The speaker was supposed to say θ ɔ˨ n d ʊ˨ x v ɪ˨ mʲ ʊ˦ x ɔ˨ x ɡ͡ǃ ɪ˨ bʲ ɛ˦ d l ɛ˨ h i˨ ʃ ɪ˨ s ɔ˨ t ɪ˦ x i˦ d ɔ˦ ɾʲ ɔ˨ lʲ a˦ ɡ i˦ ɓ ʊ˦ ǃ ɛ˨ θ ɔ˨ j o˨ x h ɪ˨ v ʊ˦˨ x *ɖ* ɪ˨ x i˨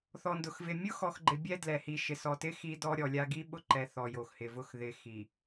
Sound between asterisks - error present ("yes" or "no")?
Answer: yes